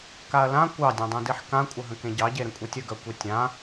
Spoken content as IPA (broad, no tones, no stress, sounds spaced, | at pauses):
k a ɐ̯ l ã kʷ ɑ dʲ œ̃ dˤ ẽ d i ħ k ã kʷʼ ə ɦ ə̃ k ẽ ɟ ɑ ɟ e ɾ ə̃ kʷʼ i tʲ ə ɡ œ kʷ i tʲ ã